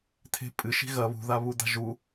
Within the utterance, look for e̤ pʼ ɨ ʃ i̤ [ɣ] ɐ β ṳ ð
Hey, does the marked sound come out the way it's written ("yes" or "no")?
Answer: yes